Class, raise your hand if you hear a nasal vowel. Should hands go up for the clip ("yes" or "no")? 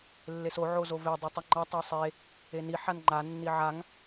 no